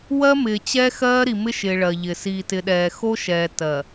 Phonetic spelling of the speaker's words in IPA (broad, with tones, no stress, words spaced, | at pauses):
wɜ˦mɪː˨ t͡ɕɛ˦xɜː˦ ɾi˨mɪ˦ʃɪː˨ ɭɜ˨ ʎɪ˨ siː˨tɪ˨ɗɛː˨ xo˦ʃɛː˨ tɜ˨